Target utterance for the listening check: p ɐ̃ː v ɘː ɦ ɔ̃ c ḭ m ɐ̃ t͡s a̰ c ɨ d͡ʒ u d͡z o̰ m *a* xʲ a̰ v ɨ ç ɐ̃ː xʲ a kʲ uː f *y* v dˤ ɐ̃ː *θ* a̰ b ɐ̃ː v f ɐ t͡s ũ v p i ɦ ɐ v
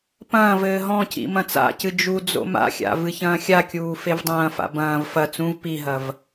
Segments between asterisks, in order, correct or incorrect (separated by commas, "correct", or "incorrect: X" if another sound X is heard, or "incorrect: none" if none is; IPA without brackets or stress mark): incorrect: a̰, incorrect: e, incorrect: f